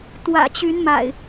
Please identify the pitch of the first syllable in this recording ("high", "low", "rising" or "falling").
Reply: low